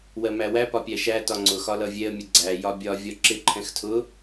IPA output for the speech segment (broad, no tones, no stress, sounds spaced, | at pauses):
w ɜ m æ w æ p ɒ pʲ æ ʃ æ t ɒ ŋ͡ǀ ʊ x ɒ l ʌ vʲ ɛ ə̯ mʲ ʊ ɡ͡ǀ æ j ɒ bʲ ɒ vʲ ɒ ǁ ɪ ǃʰ ɛ̃ x tʰ ʊ